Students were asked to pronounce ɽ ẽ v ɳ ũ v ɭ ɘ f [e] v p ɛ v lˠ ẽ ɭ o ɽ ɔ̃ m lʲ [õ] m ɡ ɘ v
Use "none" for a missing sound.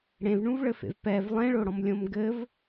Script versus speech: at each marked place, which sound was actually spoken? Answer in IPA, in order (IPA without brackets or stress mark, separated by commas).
ḛ, õ